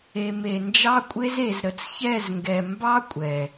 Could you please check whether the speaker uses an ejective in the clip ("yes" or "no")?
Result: yes